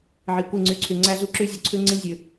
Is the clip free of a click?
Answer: no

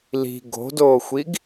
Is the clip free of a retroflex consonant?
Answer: yes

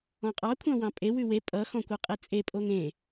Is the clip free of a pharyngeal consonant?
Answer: yes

